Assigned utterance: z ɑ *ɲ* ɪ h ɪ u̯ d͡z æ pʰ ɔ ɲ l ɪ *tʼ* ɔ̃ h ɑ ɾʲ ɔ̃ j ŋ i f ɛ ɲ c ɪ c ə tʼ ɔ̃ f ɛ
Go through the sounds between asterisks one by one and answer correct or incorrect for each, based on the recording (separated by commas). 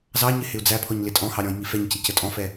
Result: correct, correct